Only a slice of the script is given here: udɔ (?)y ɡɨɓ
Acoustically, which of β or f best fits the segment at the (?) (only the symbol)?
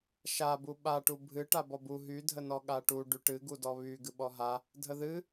β